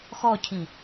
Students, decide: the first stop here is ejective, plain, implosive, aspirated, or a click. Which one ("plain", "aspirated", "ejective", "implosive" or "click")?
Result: aspirated